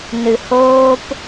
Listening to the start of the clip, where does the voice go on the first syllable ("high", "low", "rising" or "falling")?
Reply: low